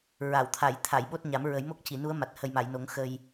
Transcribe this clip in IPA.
ɹa˨˩˨wt̪ʰa˨˩˨j t̪ʰa˨˩˨jɓo˦˥t̚ɲa˨˩˦m ɹə˨˩˦jmo˦˥k̚ci˨˩˨nu˧˥ə̯ ma˨˩t̚hə˨˩jma˨˩˨jno˨˩˦ŋ xə˧j

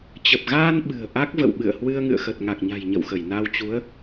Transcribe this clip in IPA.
t͡ɕə˨˩p̚ɣaː˧n ɓɨ̤˨˩ə̯ʔa˦˥k̚ və̰˧˨wɓɨ̰˧˨ə̯hwɨ˧ə̯ ŋɨ̰˧˨ə̯xə˨˩t̚ŋa˨˩k̚ɲa̤˨˩j ɲə̰˧˨wxə˧˩j na˧wt͡ɕu˨˦ə̯

